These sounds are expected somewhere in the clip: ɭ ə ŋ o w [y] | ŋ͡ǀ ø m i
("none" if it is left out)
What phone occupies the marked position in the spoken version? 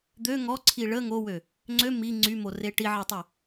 ø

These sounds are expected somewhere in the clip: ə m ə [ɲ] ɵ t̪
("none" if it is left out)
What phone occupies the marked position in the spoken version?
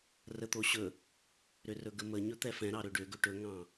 ɲ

